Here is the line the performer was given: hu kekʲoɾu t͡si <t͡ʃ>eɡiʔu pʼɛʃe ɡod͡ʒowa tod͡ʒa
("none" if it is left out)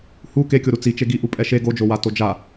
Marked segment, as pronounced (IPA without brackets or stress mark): t͡ʃ